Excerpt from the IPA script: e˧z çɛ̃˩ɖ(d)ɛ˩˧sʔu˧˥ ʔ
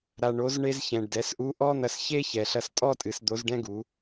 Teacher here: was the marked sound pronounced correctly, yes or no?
yes